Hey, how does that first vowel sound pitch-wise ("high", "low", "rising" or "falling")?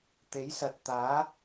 rising